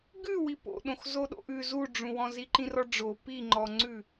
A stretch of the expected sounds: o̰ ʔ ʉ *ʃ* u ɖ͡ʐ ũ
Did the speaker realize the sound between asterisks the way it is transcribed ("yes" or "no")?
no